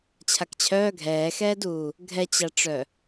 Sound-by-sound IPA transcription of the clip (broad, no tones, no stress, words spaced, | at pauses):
t͡ɕʰakt͡ɕʰœː ɡʱɛːxɛːduː | ɡʱɛt͡ɕaʈ͡ʂœ